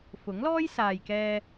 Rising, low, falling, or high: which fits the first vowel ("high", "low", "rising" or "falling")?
rising